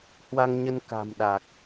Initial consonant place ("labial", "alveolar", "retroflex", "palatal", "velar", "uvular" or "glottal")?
glottal